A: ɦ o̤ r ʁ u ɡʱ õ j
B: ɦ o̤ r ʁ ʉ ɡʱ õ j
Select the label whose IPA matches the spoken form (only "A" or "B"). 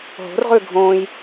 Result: B